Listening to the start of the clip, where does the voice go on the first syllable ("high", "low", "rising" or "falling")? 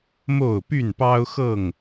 falling